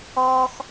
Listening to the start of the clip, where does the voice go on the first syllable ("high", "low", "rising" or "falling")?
high